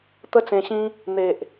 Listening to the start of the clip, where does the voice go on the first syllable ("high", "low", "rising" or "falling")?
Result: high